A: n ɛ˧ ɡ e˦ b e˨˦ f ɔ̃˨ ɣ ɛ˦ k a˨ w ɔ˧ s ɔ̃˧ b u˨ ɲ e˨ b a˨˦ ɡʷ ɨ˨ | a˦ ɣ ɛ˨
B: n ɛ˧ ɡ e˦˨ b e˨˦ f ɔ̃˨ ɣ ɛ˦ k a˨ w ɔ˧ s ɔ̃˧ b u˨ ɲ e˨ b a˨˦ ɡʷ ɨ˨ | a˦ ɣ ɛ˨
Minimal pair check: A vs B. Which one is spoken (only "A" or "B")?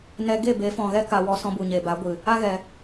B